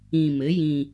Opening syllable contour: low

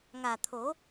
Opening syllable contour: low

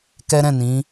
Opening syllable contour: high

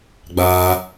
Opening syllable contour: high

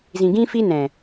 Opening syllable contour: low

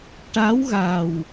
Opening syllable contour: rising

